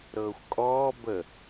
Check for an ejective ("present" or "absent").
present